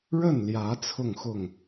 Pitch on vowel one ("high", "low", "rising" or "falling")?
falling